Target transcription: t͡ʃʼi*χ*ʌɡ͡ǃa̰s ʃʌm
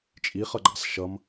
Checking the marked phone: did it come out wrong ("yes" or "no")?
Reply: no